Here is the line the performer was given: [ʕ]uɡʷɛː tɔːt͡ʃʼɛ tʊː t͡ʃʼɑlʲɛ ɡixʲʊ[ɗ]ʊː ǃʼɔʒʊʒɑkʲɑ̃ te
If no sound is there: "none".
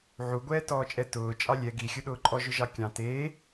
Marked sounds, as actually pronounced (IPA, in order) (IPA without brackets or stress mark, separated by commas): ʕ, ɗ